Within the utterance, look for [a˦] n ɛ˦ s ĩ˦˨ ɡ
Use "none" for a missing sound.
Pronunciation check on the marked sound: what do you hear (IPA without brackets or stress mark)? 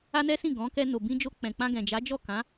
a˦